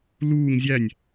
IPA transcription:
luːŋ zʲænʲ

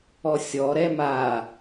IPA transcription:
ɔsʲɔ ɾɛma

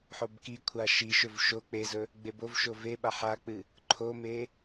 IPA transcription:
ħobkikʷʰa ʃiʃɵv ʃo k͡pezɵ | ɡ͡bebovʃo veɓa ħak͡pɨ | ǃʰome

